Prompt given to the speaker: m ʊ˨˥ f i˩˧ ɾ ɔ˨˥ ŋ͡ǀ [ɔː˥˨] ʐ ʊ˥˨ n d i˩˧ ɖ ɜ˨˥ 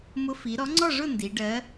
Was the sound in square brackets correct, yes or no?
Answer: no